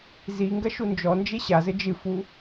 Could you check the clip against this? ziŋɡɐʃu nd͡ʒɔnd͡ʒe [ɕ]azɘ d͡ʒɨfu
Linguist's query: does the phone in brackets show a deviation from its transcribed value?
no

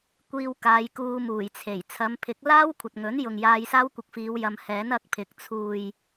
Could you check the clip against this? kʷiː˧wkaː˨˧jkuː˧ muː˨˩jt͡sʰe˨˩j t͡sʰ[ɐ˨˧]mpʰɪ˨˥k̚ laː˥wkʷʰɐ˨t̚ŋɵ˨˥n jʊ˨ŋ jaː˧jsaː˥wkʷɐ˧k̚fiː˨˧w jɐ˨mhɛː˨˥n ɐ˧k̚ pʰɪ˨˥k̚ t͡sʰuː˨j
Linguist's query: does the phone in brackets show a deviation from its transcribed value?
no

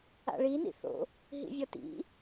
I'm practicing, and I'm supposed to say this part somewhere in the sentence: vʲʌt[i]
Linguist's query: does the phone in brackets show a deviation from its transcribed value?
yes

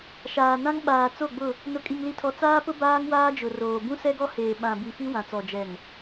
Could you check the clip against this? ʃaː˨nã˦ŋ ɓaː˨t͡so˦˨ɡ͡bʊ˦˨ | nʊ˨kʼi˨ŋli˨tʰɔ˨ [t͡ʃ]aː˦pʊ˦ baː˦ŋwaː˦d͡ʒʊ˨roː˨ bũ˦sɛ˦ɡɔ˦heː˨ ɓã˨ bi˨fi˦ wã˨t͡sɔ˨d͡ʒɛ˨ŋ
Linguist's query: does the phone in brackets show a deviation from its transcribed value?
yes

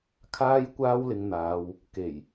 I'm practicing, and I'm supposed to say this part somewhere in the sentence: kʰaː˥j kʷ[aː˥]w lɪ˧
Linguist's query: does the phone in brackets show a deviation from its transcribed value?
no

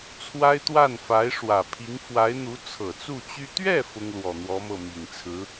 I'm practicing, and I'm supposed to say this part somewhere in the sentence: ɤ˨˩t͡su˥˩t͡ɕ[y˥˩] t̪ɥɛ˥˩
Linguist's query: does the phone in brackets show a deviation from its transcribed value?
yes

